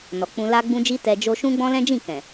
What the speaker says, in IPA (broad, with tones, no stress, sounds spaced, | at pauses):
n ɔ˨ k͡p ũ˧ l a˦ ɡ͡b ũ˦ d͡ʒ i˦ t ɛ˧ d͡ʒ o˦ ʃ ũ˦ ɡ͡b ɔ̃˦ l ɛ̃˦ d͡ʒ ĩ˦˨ k ɛ̃˨